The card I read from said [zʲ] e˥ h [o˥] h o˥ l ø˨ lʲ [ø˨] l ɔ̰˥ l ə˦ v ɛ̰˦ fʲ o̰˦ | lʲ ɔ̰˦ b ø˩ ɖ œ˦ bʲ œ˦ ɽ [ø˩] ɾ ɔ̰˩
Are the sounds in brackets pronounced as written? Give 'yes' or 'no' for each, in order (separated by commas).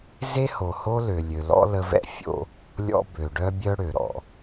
no, no, yes, yes